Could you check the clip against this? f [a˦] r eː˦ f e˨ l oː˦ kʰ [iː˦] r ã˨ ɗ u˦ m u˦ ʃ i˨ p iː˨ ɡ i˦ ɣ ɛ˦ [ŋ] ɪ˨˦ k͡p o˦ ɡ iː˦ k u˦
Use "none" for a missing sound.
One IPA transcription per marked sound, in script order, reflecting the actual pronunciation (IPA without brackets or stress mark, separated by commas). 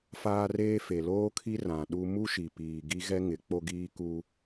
aː˦, i˦, ŋ